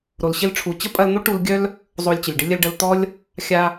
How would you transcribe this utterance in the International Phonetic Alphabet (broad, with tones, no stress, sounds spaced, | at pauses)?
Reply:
ɾ o˨ l ɕ ɪ˧ l ʈ͡ʂʰ u˨ t͡ɕ ə˦ pʼ ɐ˧ l n̪ o˦ ʈ u˧ l ɡʲ œ˦ l | zˤ o˧ lʲ t͡ɕ ə˨ lʲ ɖ ɪ˦ lʲ ə˧ l ɖ ə˧ l t̪ ɔ˦ lʲ | xʲ a˧